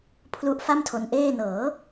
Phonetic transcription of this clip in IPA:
pʰlu˦˥ʔfa˥˩mtʰo˧nʔeː˥˩ nɤː˩˦

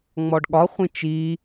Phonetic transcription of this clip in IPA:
ŋ͡mɔɖɠɒχʷĩ t͡ʃi

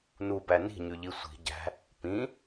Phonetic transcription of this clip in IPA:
nubæ ni̤ɲʉʎi sʷi̤ ɟæ̤ | pĩ

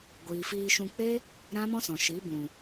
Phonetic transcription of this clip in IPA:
ɡʷiː˨fiː˧ʃũ˧k͡pe˦ | ɾã˦mɔ̃˦sɔ̃˨ ʃi˨˦bũ˨

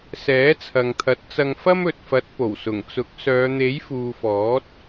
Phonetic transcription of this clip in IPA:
sɛː˨˥t͡sʰɐ˨ŋt̪ʰɐ˨˥t̚ t͡sɐ˧ŋfɐ˥mɵ˨t̚fɐ˨˥t̚ po˨˩wsʊ˨˩ŋt͡sʊ˨˥k̚ sœː˨˧n̪e˨˥jfuː˨fɔː˨˥t̚

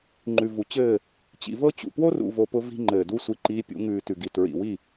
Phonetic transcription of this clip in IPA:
ŋ͡ǃʉ˨vu˨t͡ɕɘː˦˨ | t͡ɕḭ˨vɤ˦t͡ɕṵ˨ pwo˦rṵ˨vo˨ pʊ˦vi̤˦ŋ͡ǃɘː˨du˦ sʷi˦ǃiː˦pʲṵ˨˦ ŋʉː˨ tʉ˨ɡi˨ tɹḭ˨wi˦˨

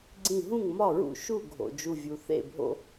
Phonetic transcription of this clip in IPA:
ɡ͡ǀĩ˧˩ɦũ˥˩ŋmɒ˥˩ɹṵ˥˩ ʃu˥˩ɡʱo̰˩ d͡ʒu˧˩vʲu˩ θḛ˥˩bʱo̰˦

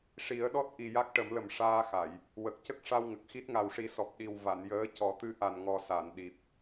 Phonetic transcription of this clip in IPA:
ʂi˨˩˦ə̯ɗɔ˦˥t̚ʔi˨˩ ja˦˥k̚ʈə˨˩˦mlə˨˩m ʂaː˧xa˨˩˨j | wə˨˩k̚cə˦˥k̚ ʂa˧wŋə˨˩k̚xi˦˥t̚ ŋa˨˩wʂi˨˩˦sɔ˨˩p̚ ɗi˨˩wva˨˩˨n jəː˧˥cɔ˨˩˦ t̪ɨ˧ ʔa˨˩nŋɔ˨˩ sa˨˩˨n ɗi˨˩p̚

